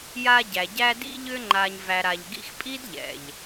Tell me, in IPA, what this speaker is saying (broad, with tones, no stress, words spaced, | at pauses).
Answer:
ja˦ɟæ˩ ɟæ˦ dḭ˦ʎʏ˦ŋ͡ǃa˨ɲvæ˨ ɾa˨ʎɡḭ˦x pʼi˥dʎɛ̰˩ʎ